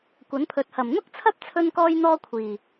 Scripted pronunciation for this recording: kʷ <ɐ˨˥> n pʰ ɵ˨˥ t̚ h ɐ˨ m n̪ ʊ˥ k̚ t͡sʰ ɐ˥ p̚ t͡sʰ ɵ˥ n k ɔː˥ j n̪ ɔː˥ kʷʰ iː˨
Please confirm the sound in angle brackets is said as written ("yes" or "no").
yes